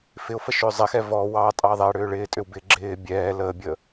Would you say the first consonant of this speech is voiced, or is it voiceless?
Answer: voiceless